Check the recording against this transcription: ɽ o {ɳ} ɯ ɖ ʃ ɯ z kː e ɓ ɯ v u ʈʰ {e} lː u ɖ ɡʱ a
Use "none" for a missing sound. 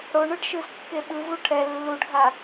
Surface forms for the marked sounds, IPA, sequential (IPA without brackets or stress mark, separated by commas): ɳ, ɛ